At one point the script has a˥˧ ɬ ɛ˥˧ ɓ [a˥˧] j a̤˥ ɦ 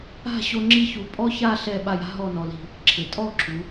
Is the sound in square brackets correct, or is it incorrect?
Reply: correct